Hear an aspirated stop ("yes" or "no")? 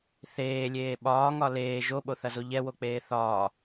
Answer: no